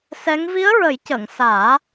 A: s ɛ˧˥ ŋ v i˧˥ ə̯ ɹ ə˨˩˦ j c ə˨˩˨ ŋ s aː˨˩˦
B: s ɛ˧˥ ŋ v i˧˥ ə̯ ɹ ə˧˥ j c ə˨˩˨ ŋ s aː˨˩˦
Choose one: A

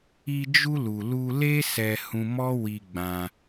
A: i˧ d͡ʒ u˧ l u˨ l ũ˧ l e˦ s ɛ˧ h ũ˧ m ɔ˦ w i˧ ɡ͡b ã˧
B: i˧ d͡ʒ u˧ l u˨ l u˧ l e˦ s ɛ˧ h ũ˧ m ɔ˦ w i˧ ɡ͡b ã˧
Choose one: B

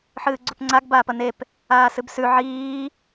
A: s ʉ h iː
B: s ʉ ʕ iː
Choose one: B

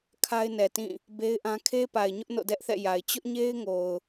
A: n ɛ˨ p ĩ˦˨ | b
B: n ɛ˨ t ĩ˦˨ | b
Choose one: B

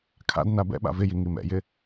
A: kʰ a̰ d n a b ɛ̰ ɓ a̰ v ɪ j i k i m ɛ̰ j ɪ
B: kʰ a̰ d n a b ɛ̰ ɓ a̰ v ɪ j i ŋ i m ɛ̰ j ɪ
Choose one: B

